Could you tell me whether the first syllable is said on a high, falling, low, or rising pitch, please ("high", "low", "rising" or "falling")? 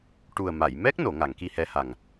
low